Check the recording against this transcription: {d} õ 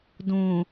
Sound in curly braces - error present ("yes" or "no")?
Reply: no